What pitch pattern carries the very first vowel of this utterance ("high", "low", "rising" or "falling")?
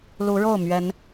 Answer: rising